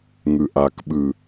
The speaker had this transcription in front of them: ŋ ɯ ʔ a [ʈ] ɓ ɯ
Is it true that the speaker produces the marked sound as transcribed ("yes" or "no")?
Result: no